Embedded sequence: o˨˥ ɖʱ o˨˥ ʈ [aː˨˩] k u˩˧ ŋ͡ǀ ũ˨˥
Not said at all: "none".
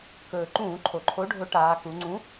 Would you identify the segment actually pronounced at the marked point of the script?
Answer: aː˩˧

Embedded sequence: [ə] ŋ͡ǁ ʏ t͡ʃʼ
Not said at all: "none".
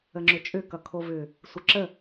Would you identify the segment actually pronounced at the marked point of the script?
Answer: ə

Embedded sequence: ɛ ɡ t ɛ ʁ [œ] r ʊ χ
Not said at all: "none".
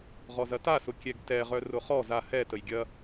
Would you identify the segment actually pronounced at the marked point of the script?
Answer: œ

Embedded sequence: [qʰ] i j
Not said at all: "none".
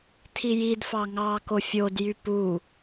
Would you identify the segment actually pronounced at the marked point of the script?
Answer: tʰ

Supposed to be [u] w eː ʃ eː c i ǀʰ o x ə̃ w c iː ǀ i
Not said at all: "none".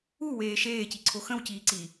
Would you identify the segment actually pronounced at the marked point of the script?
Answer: u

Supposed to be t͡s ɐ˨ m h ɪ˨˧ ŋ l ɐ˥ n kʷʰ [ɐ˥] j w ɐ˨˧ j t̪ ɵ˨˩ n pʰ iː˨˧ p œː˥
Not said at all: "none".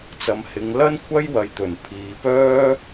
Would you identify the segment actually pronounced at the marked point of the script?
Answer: ɐ˥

